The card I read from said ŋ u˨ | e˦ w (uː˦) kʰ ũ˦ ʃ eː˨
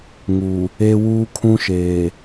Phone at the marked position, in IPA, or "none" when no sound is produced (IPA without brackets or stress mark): uː˦